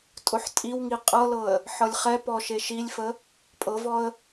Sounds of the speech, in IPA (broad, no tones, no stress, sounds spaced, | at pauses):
tʼ ʊ ħ tʼ i w ŋ i qʼ ɤ l ɤ ə̯ | ħ ɤ lʲ χ ɛ p ɔ ʃ e ʃ i lʲ f ə | pʼ ɤ v ɔ ə̯